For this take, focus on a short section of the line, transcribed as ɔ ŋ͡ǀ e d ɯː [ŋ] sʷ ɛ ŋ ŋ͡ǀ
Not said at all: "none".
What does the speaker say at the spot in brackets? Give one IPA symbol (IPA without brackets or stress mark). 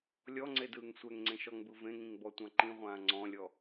ŋ